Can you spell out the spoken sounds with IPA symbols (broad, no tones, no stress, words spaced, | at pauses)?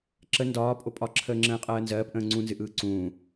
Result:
ǁə ndɒː pʼopʼɒ ǁʰəːŋ͡ǁə̃ːɪ̯qʼɜːnzɜːp ʔə̃ːŋ͡ǀũnzɨ ʔɯːǀũː